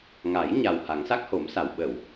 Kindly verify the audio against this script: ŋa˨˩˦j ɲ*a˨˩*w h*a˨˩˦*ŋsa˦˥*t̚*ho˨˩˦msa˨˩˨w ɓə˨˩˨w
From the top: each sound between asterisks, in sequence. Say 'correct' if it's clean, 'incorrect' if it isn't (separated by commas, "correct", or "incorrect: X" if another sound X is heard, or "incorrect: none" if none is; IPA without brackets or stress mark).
correct, correct, incorrect: k̚